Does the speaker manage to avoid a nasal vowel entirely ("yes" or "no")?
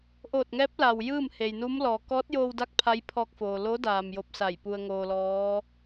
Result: yes